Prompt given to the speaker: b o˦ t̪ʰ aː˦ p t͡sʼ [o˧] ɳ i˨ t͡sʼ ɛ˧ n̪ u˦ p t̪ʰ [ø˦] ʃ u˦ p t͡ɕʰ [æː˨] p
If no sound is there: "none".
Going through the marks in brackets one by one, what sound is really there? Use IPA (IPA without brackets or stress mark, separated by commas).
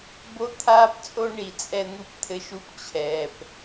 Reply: o˦, ɘ˦, ɛː˨